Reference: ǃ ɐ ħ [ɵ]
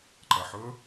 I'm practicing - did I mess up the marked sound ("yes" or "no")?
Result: no